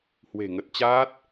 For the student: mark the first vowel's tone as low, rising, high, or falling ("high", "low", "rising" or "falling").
low